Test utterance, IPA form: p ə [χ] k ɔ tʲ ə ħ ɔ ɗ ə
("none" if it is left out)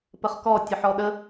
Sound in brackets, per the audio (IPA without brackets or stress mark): χ